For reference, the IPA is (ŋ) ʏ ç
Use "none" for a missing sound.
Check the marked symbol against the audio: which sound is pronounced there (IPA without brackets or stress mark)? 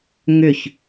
ŋ